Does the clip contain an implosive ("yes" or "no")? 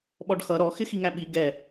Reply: yes